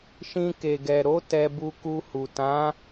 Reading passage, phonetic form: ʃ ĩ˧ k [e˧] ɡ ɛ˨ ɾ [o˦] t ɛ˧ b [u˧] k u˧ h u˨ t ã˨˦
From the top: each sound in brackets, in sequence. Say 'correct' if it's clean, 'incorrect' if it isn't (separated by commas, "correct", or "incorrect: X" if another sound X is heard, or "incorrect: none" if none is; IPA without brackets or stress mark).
incorrect: e˨, incorrect: o˨˦, correct